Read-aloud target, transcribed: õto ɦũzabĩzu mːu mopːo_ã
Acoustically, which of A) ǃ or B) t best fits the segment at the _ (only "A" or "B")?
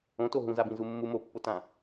B